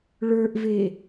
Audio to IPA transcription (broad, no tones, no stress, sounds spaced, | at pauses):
ɭ ə˞ ʔ v e